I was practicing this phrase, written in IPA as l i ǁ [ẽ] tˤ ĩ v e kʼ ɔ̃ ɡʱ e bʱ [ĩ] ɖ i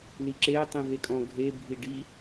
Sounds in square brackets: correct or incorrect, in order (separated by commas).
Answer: incorrect, incorrect